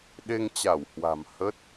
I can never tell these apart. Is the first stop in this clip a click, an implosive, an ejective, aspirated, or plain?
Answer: implosive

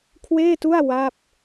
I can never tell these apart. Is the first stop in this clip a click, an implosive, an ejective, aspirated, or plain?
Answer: aspirated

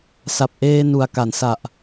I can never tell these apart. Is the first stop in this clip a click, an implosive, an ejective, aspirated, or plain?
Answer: plain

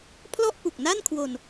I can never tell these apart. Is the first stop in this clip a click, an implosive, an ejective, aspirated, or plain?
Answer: aspirated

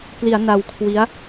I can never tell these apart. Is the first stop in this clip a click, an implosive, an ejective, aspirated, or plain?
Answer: plain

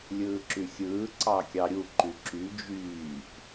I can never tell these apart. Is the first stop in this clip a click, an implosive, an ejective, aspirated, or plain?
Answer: click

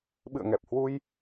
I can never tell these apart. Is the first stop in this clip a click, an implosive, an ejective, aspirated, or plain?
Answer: implosive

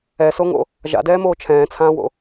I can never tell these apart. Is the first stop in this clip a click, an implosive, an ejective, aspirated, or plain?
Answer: plain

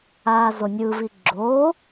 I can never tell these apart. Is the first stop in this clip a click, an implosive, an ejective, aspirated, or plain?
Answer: click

